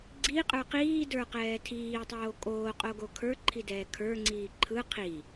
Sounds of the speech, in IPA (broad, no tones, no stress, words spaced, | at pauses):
ɡ͡ǀiqʼə˞ qiːdə˞qɛː tʰiːtˤoː kʼoːqʼoɡo kʰə˞ǃʰidɛː kʰə˞ŋ͡ǀiː ǃʰɯ qʰi